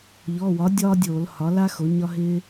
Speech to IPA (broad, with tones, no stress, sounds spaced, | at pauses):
ʎ ɔ˩˧˩ w ɒ˩˥ dʲ ɒː˥ dʲ oː˧˩˧ l h ɒ˩˥ l a˥ x o˩˥ ɲ ɒ˥ ɦ ɪː˥